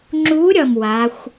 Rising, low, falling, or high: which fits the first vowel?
rising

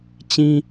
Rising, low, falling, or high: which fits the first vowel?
high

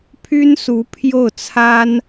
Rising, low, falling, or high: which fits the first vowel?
high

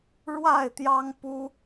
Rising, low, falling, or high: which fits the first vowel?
falling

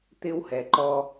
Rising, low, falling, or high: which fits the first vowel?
high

